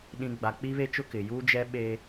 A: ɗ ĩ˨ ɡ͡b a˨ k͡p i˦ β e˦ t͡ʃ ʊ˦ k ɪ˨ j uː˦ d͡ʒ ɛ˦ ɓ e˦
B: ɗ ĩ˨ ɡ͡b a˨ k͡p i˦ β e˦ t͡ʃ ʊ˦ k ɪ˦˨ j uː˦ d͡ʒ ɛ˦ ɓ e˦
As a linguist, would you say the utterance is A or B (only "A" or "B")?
A